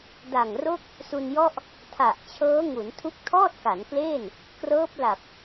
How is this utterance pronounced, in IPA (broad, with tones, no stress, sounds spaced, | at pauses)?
d a˨˩ ŋ r o˥˩ k̚ | s u˧ n j ɔ˥˩ ʔ | tʰ a˨˩ ʔ t͡ɕʰ ɤː˦˥ ŋ u˩˦ n tʰ u˦˥ k̚ tʰ ɔː˥˩ t̚ k a˩˦ n k l eː˥˩ n | k r ɤː˦˥ p̚ l a˨˩ p̚